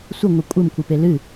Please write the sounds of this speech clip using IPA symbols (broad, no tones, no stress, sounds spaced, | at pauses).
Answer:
sʷ ə ŋʷ ɨ kʷʼ ə m kʷ ɨ p e l ɨ